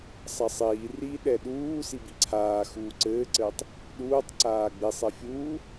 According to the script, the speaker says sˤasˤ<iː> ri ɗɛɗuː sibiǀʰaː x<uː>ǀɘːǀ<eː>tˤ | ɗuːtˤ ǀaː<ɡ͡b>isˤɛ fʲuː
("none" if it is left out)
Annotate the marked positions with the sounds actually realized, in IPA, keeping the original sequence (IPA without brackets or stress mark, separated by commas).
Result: iː, uː, ɘː, ɡ͡b